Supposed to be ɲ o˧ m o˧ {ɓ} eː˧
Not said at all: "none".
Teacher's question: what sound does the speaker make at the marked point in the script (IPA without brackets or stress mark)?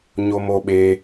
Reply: ɓ